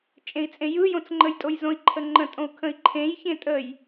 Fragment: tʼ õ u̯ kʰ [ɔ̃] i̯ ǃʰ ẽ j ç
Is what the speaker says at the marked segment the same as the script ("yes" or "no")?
no